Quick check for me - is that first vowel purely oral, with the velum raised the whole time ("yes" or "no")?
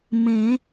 no